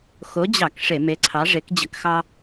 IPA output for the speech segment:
x o˨˥ d͡ʑ ɑ˧˩˧ k ʂ e˧˩˧ m e˨˥ ǀʰ ɑ˨˥ ʐ e˨˥ k d͡ʑ ə˧˩˧ k x ɑ˦

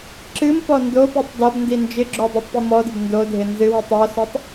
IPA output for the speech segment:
ǁ ɨ m p ɔ n d o p ɨ tˤ d ɔ b n d i n d͡ʒ ɪ ɡ͡ǁ o dˤ i tˤ p i m ɔ d ɪ b n d o dʱ ɪ n z ɨ w i tˤ ɔ s o tˤ

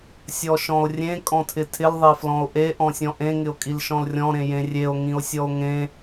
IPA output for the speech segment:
sʲ ɔ ʃ ɔ̃ o̯ rʲ ẽ kʼ ɔ̃ tʰ ɪ tʰ ɪ l ðˤ e f l ɔ̃ o̯ ʔ e ʔ ɔ̃ sʲ ɔ̃ ʔ ẽ ŋ ɪ o̯ kʼ i l ʃ ɔ̃ l rʲ ɔ̃ ɾ ẽ j ẽ rʲ e o̯ ŋ ĩ o̯ sʲ ɔ o̯ ŋ ẽ

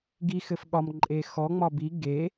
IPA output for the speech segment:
ɡ i x ɘ f ɠ ɒ m ǃʼ e x ɔ ŋ͡m ɒ b i ɡ e

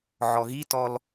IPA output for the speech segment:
ʕ ɔ ɣ i t ɔ l

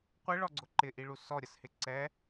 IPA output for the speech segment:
qʷ ɪ ɭ ɔ ɡ͡ǀ ʊ ǃ ɪ ʔ i ɭ u s ɔ ɾʲ ə s h ɪ ǀ ɛ

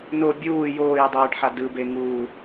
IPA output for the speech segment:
n o bʲ uː j oː j dˤ ɯː ɖ ħ a d ɯ b e ŋ uː

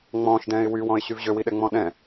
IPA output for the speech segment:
ŋ͡m ɔ̃ː ʃ d ɛ̃ː ɪ̯ w y w ɔ̃ ɪ̯ ɕ y v ʑ ø w i ɗ ɛ ŋ͡m ɔ̃ ɗ ɛ̃

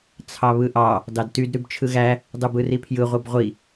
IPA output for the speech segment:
t͡sʰ ɑ β ɯ ʔ ɑ | d ɑ d t y d ɾ y b t͡ʃʰ ɯ ɣ æ | dˤ ɯ b ɯ r i pʰ j ɯ ʁʷ ɯ b ʁʷ i

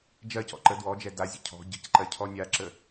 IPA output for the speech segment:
d͡ʒ ɜ c ɔ̰ ǃ ə d w ɔ d͡ʒ ɛ d a zʲ ə̰ cʰ ɔ̤ ɟ ə̤ c ǃ ɜ cʰ ɔ nʲ a ǁ ə

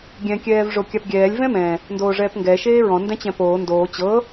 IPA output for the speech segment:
ɡʲ ɛ̃ kʲ ɛː v ʐ o kʲ a p ɡʲ ɛː lʲ v ɛ̃ m ɛ̃ | n d oː ʐ ɛː p ŋ ɡ ɛ ʃ eː ɹ ɔ̃ n d ɛ̃ t͡ɕ ɛ̃ p oː n d oː t͡ɕ ɤ

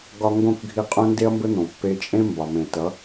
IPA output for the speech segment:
ɡ ɒ˧ ŋ ɡ õ˦˨ k ɡʱ i˧ qʼ õ˦ n d e˦ ɐ̯ m b ɘ˦ n̪ õ˨ pː e˧ t͡ʃʼ ẽ˦ m b ɒ˨ m ẽ˨ t ʌ˨˦

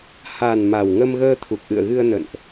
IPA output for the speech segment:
h a˨˩ n m a˨˩ w ŋ ə˧ m ɣ əː˧ t̪ʰ u˨˩ k̚ ʔ ɨ̰˧˨ ə̯ ɣ ɨ˧ ə̯ n ə̰˧˨ n ʔ

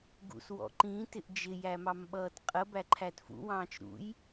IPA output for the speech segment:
ɡ ṵ s w ɔ̰ ǃ ĩ t ɪ ʔ d͡ʒ ɪ j æ m ɑ m ɓ ʌː t qʼ ə b æ ǃʰ æ t f ṵ w ɑ̃ː t͡ʃ ɾ ṵ j

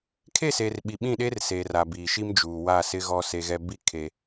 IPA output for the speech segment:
kʰ e˦˨ s eː˨ r ɓ i˨ ɓ ĩ˦˨ ɗ e˦ r s eː˨ r a˨ b iː˨ ʃ i˦ m d͡ʒ uː˨ w a˦˨ s ɪ˦ ɣ ɔ˦ s e˦ ɣ ɛ˦ b i˦ kʰ e˦

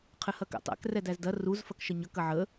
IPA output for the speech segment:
qʰ ɘ h ɐ k æ̰ tˤ æ̰ k r ɛ d æ z d ɐ r u z f ɐ k ʃ ə ɲ ʌ k ɐ ʕ ə

